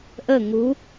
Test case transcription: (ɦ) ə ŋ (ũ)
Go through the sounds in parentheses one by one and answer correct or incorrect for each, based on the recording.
incorrect: ʔ, incorrect: u

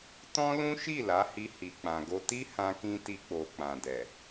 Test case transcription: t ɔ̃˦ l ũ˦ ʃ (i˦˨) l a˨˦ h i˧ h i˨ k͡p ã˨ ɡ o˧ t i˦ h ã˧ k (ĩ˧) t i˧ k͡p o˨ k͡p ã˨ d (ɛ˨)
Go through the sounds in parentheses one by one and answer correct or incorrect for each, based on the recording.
correct, correct, correct

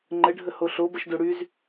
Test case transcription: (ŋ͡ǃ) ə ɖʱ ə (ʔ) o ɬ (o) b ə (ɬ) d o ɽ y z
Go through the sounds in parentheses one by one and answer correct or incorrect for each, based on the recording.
correct, incorrect: h, correct, incorrect: ʃ

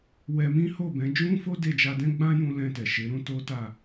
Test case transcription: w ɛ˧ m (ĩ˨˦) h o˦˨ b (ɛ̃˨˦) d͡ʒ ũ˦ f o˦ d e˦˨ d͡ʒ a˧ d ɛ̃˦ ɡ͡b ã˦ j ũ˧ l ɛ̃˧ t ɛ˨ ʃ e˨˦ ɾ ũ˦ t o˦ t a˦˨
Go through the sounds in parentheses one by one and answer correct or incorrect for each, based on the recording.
incorrect: ĩ˦, correct

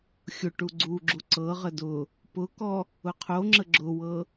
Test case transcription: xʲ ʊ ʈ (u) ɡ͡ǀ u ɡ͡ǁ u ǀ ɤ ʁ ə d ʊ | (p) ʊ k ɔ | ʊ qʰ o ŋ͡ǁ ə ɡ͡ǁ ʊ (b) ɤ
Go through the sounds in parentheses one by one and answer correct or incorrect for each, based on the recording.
correct, correct, incorrect: w

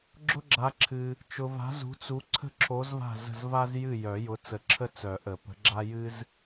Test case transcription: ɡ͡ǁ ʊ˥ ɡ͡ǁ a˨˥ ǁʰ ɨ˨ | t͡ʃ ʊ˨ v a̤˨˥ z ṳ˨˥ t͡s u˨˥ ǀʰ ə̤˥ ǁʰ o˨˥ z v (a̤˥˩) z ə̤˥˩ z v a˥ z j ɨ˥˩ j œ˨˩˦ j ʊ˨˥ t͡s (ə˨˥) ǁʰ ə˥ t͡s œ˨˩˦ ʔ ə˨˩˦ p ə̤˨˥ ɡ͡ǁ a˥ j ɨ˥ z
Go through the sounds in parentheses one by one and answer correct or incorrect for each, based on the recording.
correct, correct

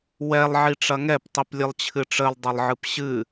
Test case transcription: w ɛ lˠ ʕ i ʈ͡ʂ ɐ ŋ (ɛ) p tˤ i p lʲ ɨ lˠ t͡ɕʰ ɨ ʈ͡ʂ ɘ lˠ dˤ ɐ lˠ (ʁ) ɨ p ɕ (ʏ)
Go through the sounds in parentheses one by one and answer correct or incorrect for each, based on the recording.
correct, incorrect: ʕ, incorrect: ɨ

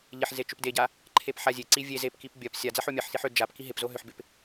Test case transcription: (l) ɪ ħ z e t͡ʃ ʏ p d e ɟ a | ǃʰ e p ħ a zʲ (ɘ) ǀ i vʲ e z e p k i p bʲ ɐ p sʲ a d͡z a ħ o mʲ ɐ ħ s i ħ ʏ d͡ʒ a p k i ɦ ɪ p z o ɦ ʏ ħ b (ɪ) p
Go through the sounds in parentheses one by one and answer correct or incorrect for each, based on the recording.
incorrect: ʎ, incorrect: e, correct

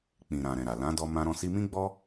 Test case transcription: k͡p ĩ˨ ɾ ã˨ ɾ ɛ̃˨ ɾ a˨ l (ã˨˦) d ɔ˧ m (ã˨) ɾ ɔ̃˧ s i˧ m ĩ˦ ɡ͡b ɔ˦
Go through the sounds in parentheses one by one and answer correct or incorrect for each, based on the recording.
correct, incorrect: ã˧

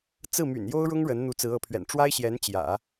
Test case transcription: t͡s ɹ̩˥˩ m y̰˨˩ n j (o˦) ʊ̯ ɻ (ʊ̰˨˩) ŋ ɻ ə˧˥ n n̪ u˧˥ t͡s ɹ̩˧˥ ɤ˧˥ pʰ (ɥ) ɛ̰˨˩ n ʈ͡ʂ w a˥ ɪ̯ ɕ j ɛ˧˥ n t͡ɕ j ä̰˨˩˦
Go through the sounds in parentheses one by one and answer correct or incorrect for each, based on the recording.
incorrect: o˥, incorrect: ʊ˥, correct

